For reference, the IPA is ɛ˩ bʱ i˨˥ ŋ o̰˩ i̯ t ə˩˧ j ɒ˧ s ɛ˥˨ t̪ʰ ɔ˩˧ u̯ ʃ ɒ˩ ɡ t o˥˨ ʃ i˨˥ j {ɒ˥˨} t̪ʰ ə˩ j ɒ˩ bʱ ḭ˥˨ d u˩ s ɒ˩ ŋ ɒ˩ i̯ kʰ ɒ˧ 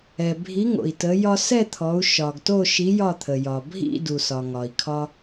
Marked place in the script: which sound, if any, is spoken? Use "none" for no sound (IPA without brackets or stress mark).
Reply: ɒ˥˨